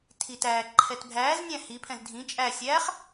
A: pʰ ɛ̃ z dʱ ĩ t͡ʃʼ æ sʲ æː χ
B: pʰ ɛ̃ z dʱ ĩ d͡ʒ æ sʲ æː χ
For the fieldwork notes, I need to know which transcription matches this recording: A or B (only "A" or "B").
A